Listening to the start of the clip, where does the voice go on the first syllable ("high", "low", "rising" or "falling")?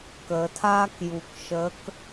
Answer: low